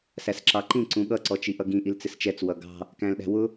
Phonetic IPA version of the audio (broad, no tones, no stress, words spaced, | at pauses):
sæsǁɑǃĩ ǀũɠʌ ǀɔt͡ʃiʔʌɡĩ ʔilt͡sɪst͡ʃɛt͡s wʌɡɑ̤ | kæ̃lɗæ̤wʊ